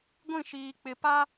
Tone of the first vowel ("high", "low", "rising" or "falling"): falling